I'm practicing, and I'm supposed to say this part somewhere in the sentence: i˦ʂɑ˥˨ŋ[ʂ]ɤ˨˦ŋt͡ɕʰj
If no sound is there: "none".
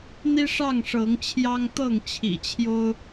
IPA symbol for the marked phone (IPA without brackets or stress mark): ʂ